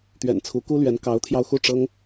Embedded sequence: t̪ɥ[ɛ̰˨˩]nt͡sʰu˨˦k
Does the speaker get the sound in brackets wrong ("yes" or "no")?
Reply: no